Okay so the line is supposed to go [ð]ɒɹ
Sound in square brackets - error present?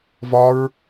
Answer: yes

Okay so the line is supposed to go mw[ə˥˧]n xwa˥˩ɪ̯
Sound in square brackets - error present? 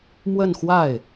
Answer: no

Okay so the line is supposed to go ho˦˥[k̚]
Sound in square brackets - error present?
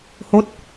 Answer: yes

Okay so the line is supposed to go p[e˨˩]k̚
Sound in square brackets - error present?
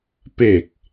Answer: no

